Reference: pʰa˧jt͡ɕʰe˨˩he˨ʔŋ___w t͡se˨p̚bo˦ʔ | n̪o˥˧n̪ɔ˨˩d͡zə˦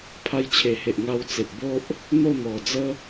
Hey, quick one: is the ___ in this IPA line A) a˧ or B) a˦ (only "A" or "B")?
A